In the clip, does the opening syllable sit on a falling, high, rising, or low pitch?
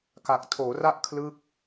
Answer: low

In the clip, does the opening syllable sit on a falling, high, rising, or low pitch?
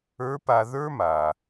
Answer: rising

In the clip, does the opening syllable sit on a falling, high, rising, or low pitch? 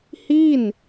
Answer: falling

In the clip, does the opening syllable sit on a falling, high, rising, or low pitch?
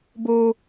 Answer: high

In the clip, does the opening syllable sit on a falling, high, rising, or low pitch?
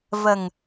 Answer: low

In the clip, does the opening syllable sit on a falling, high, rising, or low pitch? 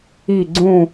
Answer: falling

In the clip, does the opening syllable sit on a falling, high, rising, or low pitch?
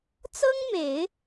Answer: high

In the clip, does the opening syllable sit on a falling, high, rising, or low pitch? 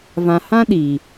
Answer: low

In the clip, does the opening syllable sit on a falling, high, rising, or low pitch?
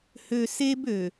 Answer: low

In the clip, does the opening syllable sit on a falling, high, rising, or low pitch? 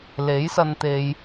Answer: rising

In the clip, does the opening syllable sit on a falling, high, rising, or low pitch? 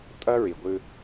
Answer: high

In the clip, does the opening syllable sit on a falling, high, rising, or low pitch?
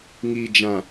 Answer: low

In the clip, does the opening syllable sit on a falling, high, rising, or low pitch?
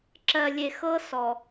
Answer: low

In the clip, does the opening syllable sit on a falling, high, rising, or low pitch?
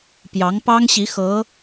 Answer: rising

